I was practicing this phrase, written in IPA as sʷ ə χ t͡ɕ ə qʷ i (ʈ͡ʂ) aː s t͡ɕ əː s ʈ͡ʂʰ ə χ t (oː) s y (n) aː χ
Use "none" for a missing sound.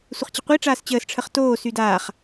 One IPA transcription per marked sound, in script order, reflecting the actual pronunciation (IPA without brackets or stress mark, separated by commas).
ʈ͡ʂ, oː, d